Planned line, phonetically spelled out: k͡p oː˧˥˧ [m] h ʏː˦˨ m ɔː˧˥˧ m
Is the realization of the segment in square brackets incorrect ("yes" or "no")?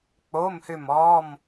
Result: no